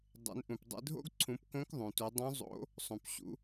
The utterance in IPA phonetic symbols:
dˤ ḛ˩˧ n ʔ ũ˩ p dˤ ḛ˧ dʱ o̰˥ ɡ ǀʰ ũ˩˧ p k õ˧˥ k ðˤ ũ˩ t u˩˧ dˤ ũ˧˥ zˤ o̰˧˥ | sˤ õ˩ p ɕ ṵ˩˧

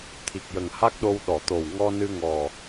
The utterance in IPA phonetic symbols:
t̪ʰ i˨˩ k̚ j ə˨˩ ŋ h a˦˥ k̚ ɗ o˧ w ɗ ɔ˨˩˨ t̪ o˨˩ w ŋ ɔ˧ n ɨ˧ ŋ ɔ˨˩

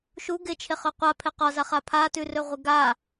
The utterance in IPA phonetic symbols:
ʃ u ɡ ɪ t͡ʃʰ e χ ɵ qʷ a pʰ ɪ q ɒ z a χ a pʰ a t ʉ r ɵ ʁʷ ɪ ɡ a

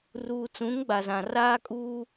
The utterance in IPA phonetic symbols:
r uː˨ t͡s ũ˨˦ ŋ ɡ͡b a˨ z ã˨ r aː˦ kʼ uː˦

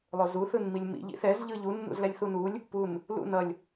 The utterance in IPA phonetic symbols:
lˠ o z u θ ɯ n m i lʲ m ḭ ʎ ḭ θ ɛ z ʎ ɯ ʎ u nː ṵ z l ɛ lʲ θ u n u lʲ | p u n | l ṵ n ʌ lʲ

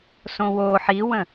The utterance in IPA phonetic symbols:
s õ w o ħ i w ə̃

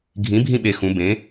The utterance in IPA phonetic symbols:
ɡʱ ĩ˩˥ bʱ ĩ˦˨ ɓ e˨˩ x ũ˩˧ b ẽ˩˥

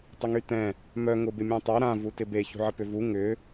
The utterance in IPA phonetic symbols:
tˤ ɪ ŋ y t ɛ̃ | m œ ŋ ʊ b ɪ mʲ ɛ̃ tˤ a ɾ ã v u t ɪ b e ç ṳ ʕ ə p ʏ v u ŋ ʏ

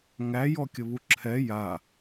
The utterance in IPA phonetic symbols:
ŋ æ j ɔ kʲ ə β u ǁʰ ɛ j a

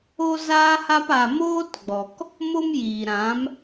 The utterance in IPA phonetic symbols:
o˦ z aː˦ h a˦ p a˧ m oː˦ t ɡ͡b ɔ˨ k | m o˦ m j iː˨ ɾ ã˨˦ m

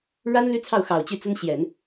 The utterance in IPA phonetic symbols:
ɻ a˥ n l y˥ t͡sʰ ɑ˥˩ ʊ̯ x ɑ˨˩ ʊ̯ t͡ɕ y˥˩ t͡s ə˥ n ɕ j ɛ˨˩˦ n

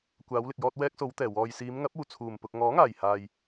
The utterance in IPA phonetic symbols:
kʷ aː˨˧ w l ɪ˨ k̚ j ɔː˧ t̚ w ɛː˧ k̚ s o˨˧ w t̪ ɛː˨˩ w ɔː˨ j s iː˨˧ m ŋ ɐ˨˥ p̚ uː˨˩ t͡sʰ uː˨˩ m p ʊ˨ k̚ ŋ ɔː˨˥ ŋ aː˨˩ j h aː˨ j

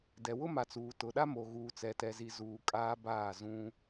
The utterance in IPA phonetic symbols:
d ɛ˨ w ʊ˦ m a˨ t͡s uː˨ t ʊ˨ ɗ a˦ m o˨ ɣ uː˨ t͡s ɛ˨ t ɛ˨ z i˨ z uː˨ kʼ aː˦ b aː˦˨ z ũ˦

